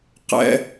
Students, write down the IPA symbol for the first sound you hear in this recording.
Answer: q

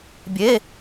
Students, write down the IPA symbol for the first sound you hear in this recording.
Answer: bʲ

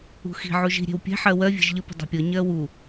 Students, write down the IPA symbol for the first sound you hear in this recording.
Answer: ṳ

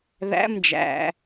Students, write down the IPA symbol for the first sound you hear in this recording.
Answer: ð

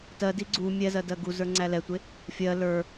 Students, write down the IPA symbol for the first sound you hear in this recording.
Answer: t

